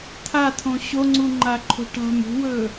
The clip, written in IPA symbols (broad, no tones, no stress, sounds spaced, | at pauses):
t̪ʰ a t̪ʰ õ ɕ o ŋ͡ǀ u ŋ͡ǃ a ǃʰ o̤ ʈ a̤ m ṳ w ɵ